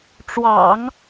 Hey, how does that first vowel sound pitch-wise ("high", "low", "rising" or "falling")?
low